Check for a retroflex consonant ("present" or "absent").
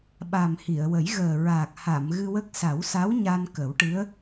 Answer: present